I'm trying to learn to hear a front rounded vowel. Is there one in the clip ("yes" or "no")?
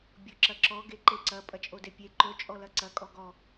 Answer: no